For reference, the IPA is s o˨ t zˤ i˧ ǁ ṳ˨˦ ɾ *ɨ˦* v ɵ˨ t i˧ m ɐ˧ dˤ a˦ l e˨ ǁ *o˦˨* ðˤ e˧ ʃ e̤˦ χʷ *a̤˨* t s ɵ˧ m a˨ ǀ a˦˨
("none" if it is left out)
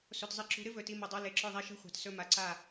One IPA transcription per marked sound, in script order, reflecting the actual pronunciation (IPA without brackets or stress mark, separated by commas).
ɨ˦, ɵ˦˨, a̤˨